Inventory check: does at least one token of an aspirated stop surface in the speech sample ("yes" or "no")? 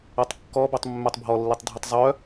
no